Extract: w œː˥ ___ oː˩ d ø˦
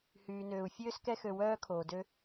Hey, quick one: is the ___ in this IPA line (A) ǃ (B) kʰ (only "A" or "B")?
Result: B